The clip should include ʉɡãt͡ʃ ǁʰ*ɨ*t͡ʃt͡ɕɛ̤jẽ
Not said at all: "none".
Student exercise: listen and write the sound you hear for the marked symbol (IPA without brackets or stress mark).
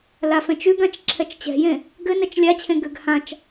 ɛ